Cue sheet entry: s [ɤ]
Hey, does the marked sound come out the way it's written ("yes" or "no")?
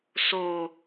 no